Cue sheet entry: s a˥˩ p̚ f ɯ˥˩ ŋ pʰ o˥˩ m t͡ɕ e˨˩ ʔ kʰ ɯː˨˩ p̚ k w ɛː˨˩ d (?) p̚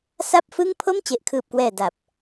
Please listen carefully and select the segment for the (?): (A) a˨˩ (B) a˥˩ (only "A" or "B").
A